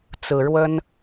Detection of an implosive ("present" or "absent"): absent